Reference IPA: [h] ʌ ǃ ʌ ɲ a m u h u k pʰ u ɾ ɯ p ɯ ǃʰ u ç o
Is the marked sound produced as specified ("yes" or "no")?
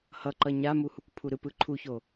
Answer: yes